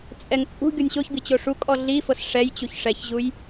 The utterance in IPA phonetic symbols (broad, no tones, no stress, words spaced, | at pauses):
t͡sʼɛŋ t͡sʼṳ ɡʲɔnʲɕoçbi t͡ɕoʂukʼɔ ɮifɤs ʂɛjt͡ɕuç ʂɛçʑuj